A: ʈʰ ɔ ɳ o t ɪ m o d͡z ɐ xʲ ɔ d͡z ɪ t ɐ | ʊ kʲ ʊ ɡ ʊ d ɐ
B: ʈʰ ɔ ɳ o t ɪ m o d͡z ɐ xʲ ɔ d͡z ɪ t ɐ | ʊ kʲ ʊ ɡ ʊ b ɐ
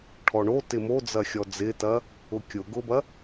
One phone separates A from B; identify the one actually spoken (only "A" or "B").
B